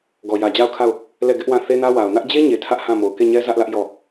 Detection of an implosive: absent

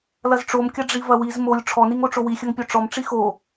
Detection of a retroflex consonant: present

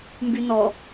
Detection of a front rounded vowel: present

